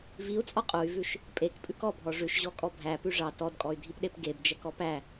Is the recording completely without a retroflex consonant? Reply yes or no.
no